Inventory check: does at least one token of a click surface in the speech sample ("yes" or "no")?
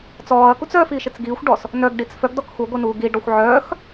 no